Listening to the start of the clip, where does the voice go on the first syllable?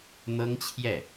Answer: high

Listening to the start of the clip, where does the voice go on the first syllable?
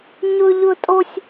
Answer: high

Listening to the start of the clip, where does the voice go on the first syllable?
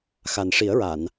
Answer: low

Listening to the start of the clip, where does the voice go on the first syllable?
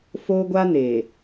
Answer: high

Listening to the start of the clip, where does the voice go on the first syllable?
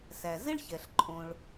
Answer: low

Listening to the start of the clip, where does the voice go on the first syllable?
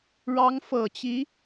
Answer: rising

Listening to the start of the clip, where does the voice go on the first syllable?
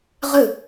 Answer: falling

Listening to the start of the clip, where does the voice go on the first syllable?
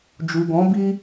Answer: low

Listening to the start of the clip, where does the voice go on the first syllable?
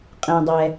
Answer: low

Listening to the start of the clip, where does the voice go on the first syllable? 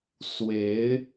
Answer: rising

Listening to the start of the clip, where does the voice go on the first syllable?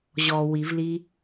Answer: low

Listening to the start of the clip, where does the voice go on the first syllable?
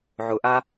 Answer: low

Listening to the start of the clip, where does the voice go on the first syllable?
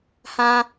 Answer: high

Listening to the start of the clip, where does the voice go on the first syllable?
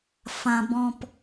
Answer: low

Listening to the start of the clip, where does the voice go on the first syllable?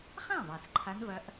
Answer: falling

